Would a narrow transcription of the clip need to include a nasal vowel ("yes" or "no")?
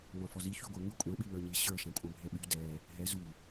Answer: yes